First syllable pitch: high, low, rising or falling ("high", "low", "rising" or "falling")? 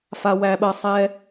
high